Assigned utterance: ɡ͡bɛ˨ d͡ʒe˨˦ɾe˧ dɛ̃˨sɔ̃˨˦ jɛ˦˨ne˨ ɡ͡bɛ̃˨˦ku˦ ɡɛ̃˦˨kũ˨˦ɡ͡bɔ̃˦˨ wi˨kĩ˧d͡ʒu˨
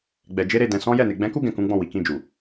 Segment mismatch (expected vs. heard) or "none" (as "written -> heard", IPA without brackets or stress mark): none